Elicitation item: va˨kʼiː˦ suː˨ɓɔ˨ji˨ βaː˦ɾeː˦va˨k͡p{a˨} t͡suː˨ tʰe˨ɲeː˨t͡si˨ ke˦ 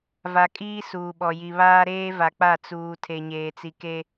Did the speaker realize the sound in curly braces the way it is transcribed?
no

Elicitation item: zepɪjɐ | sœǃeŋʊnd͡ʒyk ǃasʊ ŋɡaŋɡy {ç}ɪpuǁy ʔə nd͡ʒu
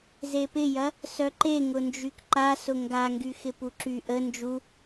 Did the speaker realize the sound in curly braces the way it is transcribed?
no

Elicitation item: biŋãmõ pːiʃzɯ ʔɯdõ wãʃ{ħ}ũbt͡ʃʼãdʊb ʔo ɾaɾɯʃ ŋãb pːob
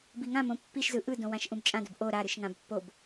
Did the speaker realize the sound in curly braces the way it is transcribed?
no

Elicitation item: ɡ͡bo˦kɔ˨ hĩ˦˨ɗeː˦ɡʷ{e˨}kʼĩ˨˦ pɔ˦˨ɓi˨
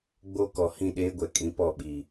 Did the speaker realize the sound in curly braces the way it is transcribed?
no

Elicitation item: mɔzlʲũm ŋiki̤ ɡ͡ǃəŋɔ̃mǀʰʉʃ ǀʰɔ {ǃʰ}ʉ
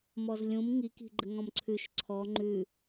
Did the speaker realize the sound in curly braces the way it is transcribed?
no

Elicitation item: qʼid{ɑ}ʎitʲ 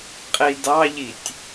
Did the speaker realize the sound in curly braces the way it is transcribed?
yes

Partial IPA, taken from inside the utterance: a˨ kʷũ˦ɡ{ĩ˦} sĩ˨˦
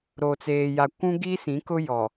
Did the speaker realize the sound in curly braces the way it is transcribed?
no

